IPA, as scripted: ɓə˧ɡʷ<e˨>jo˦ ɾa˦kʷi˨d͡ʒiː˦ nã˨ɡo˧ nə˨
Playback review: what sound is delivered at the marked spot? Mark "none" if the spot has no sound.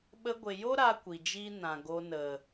e˨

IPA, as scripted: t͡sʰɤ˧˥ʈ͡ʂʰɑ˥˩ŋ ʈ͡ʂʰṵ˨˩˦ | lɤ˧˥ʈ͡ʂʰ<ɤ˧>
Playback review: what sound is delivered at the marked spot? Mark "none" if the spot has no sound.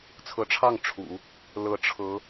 ɤ˧˥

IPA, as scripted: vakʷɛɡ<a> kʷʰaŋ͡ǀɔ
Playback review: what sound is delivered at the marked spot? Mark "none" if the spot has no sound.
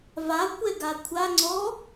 a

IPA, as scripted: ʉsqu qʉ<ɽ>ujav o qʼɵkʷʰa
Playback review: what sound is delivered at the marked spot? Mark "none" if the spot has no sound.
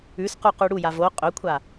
ɽ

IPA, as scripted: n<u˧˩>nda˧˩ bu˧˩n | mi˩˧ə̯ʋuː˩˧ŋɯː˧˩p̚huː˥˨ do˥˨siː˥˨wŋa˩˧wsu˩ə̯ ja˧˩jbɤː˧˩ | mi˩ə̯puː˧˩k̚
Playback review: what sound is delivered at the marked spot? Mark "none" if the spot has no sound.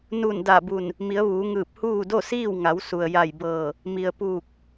u˧˩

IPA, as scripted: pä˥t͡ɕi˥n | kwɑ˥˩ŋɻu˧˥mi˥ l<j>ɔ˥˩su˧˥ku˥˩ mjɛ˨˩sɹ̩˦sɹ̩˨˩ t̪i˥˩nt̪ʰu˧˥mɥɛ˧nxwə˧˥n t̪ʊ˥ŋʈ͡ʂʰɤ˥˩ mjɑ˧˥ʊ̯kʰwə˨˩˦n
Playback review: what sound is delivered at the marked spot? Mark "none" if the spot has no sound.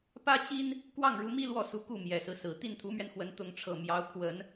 w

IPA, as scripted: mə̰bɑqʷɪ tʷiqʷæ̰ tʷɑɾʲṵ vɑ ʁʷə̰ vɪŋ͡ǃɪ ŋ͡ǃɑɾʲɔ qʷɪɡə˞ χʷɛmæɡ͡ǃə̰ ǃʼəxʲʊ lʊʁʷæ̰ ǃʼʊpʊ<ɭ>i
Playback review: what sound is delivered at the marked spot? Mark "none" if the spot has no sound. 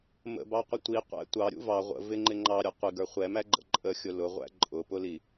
l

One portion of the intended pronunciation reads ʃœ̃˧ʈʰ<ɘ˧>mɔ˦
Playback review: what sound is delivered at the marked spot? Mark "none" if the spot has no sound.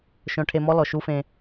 e˧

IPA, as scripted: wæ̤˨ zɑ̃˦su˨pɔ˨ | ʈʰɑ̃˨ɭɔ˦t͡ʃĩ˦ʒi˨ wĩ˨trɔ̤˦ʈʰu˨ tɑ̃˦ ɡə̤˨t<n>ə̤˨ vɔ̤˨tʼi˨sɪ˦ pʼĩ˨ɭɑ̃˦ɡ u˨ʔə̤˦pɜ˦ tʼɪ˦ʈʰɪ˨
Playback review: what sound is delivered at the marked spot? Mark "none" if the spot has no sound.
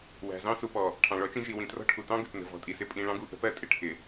n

